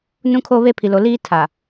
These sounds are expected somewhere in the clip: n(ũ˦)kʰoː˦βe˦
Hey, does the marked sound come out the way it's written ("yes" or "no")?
yes